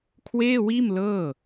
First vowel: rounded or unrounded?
unrounded